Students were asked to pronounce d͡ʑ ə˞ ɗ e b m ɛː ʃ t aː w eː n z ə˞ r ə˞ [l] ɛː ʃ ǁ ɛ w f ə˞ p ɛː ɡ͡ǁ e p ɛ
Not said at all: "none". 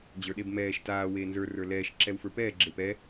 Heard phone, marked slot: l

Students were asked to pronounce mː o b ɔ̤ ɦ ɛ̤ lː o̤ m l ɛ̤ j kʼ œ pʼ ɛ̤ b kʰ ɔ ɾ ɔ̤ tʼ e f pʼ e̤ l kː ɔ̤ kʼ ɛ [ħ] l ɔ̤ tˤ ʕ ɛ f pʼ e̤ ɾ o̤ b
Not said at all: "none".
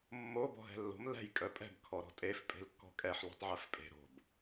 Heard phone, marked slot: ħ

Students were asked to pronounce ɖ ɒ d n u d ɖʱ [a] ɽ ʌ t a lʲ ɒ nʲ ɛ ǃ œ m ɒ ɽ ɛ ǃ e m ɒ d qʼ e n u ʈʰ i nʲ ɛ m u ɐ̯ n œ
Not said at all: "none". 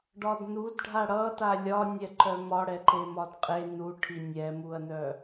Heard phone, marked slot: a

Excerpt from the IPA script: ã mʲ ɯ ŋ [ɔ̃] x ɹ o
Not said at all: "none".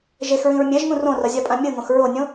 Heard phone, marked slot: õ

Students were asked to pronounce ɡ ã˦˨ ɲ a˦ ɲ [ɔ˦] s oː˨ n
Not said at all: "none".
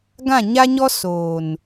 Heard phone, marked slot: ɔ˦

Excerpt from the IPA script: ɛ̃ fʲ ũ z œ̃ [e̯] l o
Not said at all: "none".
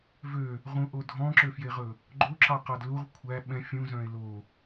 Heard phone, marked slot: e̯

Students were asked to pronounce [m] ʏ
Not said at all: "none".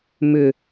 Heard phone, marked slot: m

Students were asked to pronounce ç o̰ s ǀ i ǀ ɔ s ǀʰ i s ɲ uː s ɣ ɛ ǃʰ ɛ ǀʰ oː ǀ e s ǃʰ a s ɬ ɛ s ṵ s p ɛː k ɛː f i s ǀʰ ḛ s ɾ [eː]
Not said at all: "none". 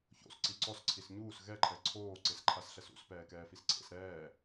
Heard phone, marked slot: ɛː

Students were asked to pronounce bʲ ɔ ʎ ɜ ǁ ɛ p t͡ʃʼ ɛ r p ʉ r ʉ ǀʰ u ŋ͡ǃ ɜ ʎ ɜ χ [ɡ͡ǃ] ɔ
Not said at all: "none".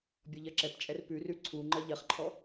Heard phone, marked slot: ǃʰ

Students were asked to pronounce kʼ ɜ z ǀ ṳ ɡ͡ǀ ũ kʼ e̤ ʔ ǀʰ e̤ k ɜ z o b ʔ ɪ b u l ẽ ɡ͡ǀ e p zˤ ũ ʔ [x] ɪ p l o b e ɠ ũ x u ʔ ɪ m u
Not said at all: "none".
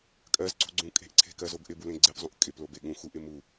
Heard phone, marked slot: kʼ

